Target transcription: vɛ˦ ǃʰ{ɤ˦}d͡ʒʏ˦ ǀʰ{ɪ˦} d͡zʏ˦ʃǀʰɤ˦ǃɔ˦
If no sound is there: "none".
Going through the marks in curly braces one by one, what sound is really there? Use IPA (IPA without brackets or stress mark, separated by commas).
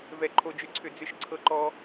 o˦, ʏ˦